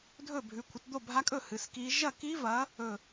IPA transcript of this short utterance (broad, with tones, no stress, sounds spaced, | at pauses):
dʱ ɵ˥˨ bʱ ʉ˨˦ kʷʰ ɐ˨˦ t d̪ o˥˨ bʱ a˦˥ kʼ ɵ˥˨ h ɨ˨˦ s k i˦˥ ʒ ɐ˥˨ k i˦˥ v ɐ˨˦ | ɵ˥˨